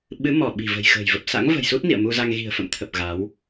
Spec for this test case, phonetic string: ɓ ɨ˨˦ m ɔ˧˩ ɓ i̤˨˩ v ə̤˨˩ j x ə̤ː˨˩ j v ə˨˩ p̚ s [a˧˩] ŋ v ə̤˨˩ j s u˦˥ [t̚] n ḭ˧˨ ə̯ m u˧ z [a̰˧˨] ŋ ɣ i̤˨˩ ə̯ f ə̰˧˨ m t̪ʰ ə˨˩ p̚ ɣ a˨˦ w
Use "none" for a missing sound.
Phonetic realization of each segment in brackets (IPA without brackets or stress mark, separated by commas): a̰˧˥, t̚, a˧